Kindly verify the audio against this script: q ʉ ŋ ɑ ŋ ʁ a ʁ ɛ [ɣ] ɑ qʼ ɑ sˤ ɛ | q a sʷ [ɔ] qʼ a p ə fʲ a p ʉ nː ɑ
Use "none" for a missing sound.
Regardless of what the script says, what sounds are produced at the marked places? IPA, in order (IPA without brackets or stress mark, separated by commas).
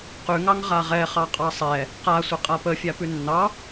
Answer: χ, ə